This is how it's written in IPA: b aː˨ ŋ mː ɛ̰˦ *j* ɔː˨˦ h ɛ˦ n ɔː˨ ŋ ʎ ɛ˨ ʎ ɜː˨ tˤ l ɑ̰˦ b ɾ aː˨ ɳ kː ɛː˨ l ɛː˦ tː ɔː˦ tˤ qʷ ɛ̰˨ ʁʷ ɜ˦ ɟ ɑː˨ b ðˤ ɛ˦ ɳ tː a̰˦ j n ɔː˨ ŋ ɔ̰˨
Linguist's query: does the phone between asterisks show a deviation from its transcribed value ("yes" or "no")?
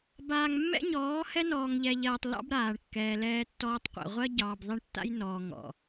yes